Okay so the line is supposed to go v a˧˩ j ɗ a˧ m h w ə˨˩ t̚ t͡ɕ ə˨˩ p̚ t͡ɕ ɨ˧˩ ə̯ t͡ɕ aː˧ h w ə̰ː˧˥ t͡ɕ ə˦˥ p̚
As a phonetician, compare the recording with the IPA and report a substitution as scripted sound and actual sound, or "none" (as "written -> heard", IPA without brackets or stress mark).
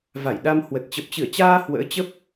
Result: none